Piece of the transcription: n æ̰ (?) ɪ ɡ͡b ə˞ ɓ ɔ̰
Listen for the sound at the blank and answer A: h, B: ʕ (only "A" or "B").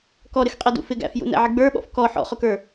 B